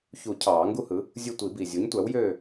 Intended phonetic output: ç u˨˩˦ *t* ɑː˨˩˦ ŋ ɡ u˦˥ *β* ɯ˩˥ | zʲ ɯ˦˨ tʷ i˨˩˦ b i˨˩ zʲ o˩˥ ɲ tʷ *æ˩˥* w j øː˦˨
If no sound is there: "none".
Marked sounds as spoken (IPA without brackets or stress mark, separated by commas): cʰ, h, æ˩˥